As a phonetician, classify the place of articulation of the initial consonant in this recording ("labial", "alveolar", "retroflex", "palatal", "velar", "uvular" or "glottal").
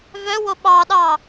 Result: labial